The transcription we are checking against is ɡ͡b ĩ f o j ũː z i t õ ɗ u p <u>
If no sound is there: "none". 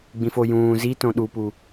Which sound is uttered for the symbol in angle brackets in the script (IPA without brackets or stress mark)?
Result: u